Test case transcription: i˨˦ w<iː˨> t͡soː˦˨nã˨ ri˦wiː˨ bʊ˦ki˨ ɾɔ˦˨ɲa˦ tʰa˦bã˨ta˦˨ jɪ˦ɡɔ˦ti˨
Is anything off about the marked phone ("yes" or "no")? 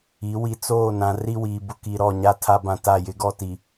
yes